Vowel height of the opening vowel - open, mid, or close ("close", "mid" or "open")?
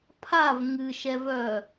open